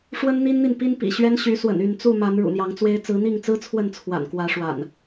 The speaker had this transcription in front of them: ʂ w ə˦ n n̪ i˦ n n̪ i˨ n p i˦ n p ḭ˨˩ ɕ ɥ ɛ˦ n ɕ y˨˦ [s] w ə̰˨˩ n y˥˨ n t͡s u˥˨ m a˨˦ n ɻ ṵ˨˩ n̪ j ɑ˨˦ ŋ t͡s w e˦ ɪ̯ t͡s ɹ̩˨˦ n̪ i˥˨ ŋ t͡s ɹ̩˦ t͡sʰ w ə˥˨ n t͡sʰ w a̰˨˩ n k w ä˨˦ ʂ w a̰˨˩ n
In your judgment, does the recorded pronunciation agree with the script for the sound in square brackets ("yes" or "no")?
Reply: yes